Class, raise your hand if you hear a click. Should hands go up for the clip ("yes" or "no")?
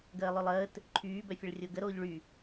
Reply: yes